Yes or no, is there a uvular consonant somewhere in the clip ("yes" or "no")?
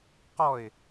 yes